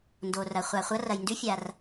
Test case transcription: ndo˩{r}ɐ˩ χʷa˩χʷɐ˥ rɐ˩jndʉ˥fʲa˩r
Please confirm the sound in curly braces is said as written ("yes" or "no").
yes